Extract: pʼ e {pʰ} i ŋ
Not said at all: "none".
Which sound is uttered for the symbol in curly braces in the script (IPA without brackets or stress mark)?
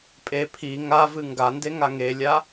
pʰ